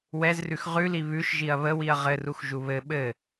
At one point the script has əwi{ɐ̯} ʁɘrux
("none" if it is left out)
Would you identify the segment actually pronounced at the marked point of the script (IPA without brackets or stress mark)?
ɐ̯